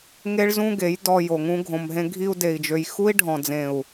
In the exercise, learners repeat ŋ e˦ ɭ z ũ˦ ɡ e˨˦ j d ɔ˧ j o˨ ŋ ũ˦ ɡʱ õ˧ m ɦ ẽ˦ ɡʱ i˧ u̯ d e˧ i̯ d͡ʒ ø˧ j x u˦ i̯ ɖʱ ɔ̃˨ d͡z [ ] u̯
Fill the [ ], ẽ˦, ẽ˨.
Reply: ẽ˨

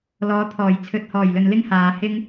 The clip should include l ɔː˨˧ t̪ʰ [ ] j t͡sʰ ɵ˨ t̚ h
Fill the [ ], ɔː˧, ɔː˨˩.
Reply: ɔː˨˩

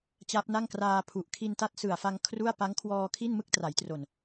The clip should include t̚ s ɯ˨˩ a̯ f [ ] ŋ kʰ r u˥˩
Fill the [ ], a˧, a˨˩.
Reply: a˧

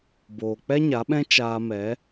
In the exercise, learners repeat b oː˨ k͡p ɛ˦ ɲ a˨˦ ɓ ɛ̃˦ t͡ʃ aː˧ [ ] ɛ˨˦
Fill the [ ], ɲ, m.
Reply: m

